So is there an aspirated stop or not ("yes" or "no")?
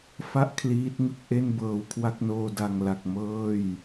yes